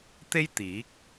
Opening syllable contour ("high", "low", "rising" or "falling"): high